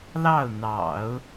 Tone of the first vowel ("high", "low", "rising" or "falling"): falling